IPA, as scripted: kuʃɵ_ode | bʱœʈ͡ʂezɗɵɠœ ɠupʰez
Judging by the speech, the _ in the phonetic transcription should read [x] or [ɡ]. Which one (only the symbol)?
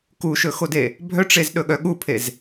x